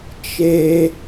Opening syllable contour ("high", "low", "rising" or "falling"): high